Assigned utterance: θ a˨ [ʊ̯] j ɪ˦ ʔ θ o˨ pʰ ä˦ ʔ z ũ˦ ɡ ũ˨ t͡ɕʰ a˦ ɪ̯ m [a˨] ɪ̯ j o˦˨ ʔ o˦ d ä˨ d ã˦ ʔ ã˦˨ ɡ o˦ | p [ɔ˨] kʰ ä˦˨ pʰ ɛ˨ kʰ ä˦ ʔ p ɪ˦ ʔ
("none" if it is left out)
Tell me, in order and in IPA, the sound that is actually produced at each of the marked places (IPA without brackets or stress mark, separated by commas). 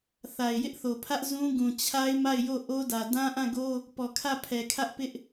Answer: ɪ̯, a˦˨, ɔ˨